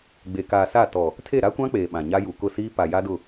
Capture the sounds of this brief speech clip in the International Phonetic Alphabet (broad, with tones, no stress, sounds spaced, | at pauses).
ɡ͡b e˨ k aː˨ s a˦˨ t ɔ˨ | tʰ e˦˨ ɾ a˦ kʷ ã˦ k͡p eː˨ ɓ ã˨ ɲ a˦ j u˨ k ʊ˦˨ s iː˦ p a˨ j a˦ d ʊ˦˨